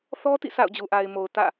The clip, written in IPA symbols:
θ ɔ˦ t ḭ˦˨ sʰ a̰˦˨ ʊ̯ d͡ʑ u˨ ʔ a˨ ɪ̯ m o˨ ʊ̯ t ä̰˦˨

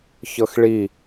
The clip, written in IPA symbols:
ç ɤ x ɭ i

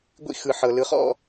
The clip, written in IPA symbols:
ɡʷ ḭ˦ x ɯ˨ ħ ɤ˨ l ɯ˨ χ ɔ̰˦˨

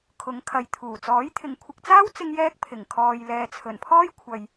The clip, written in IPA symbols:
kʰ ʊ˨˥ ŋ kʰ ɐ˨ j t̪ʰ uː˨˩ t͡s ɔː˨˥ j t̪ʰ ɪ˨ ŋ kʷʰ ɪ˨ k̚ t͡s aː˥ w t͡s ɪ˥ ŋ j ɛː˥ k̚ pʰ ɪ˨˩ ŋ kʰ ɔː˨ j l ɛː˨ t͡sʰ ɵ˨˩ n pʰ ɔː˥ j kʷʰ ɐ˨ j

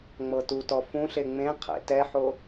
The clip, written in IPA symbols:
ŋ͡m ɤ t u t ɔ f ũ ɬ e ŋ͡m ẽ qʰ ḛ t ɛ ħ o

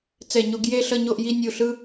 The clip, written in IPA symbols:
t͡s ɛ˧˩ ɲ o˦ ɡ j e˥˨ ɬ ʌ˥˨ ɲ o˥˨ ʔ j i˦ nʲ u˧˩ ɬ ɯ˦

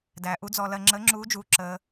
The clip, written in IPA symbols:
d æː˧ ʔ u˧˥ d͡z ɔ˧ l ɜ˧ ŋ͡ǁ əː˧˥ ŋ͡ǁ uː˧˥ d͡ʒ uː˧ ǁ əː˧

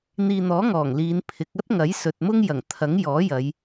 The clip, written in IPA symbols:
n̪ iː˨ n̪ ɔː˨˥ ŋ ɔː˨˩ ŋ l iː˨˧ n pʰ ɪ˨˥ k̚ ɐ˥ t̚ ŋ ɐ˨˥ j s ɵ˨ t̚ m ʊ˥ ŋ j ɐ˨˩ ŋ t̪ʰ ɐ˨˥ ŋ j ɔː˨˥ j ɐ˨˧ j

